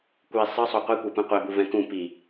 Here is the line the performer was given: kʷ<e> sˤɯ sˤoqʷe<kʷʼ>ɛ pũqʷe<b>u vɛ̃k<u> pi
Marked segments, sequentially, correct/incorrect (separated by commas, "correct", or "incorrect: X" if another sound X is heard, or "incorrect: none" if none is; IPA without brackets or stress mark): incorrect: i, incorrect: kʷ, correct, incorrect: ũ